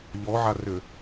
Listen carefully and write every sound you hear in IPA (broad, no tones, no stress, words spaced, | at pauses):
ʎɔʕarʏ